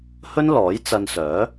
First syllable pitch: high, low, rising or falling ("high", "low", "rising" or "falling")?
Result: high